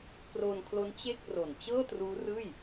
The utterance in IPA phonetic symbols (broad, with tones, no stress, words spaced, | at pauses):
kroː˧nkʰlo˦˥n t͡ɕe˥˩k̚ ro˨˩nt͡ɕɤː˥˩truː˦˥rɯː˥˩j